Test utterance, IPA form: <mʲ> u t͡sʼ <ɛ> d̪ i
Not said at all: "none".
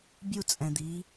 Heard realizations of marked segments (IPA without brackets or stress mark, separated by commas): bʲ, ɛ̃